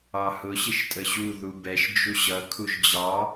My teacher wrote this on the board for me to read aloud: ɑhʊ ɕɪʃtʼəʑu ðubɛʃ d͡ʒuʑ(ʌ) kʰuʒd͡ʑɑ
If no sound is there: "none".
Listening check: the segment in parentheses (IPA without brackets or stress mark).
ʌ